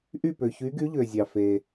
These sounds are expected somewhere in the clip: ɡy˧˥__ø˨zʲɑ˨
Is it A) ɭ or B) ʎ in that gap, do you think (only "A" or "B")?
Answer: B